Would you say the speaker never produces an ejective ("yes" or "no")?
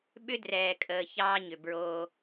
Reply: no